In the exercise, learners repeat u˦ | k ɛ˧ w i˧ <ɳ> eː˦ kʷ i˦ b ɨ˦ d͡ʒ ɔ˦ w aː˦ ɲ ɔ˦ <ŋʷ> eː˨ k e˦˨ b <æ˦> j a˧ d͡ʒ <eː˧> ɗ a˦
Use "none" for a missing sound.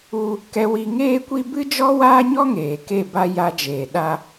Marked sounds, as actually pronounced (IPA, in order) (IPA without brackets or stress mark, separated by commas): ŋ, ŋ, a˦, eː˨